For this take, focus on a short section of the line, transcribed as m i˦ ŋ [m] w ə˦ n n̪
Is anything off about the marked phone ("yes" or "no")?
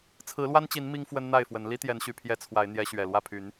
yes